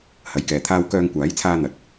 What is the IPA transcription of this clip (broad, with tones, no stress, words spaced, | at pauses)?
hɐ˨˧jkɛː˨ t̪ʰaː˧wkœː˧ŋkʷaː˨˥jt͡sʰaː˧ n̪ɐ˨t̚